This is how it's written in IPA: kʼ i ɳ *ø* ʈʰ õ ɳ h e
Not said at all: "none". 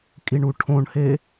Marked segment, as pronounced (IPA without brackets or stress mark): u